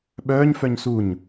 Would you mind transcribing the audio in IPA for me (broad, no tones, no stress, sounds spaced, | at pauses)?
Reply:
ɓ œː ɲ f œ ɲ s u ɲ